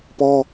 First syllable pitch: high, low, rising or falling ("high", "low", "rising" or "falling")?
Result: high